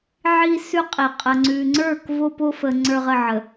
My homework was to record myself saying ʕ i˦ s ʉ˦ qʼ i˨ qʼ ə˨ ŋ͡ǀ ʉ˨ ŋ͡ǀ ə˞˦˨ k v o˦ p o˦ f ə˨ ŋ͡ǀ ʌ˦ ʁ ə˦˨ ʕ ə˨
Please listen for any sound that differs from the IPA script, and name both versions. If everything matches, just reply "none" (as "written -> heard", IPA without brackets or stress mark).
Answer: ʌ˦ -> ə˞˦